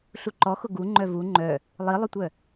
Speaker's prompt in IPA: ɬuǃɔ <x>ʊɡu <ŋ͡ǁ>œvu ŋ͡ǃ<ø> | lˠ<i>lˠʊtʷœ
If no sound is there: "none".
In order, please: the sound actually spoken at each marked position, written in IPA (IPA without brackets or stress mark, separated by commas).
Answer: x, ŋ͡ǃ, œ, i